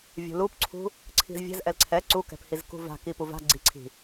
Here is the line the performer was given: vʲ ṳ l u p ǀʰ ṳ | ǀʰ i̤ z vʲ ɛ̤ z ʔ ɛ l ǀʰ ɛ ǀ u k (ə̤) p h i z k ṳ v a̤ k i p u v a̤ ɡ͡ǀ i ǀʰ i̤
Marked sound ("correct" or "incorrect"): incorrect